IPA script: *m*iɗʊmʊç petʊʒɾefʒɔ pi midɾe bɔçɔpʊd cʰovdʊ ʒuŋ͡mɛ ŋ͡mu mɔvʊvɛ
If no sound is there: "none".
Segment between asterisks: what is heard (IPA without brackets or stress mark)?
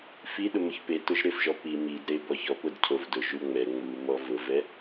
f